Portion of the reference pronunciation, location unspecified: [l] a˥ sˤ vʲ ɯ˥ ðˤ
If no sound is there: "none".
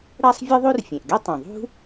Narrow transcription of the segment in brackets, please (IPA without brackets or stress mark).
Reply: ɽ